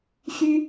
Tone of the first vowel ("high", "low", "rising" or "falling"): high